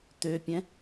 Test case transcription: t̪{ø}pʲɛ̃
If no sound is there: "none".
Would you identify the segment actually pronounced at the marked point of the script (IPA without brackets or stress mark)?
ø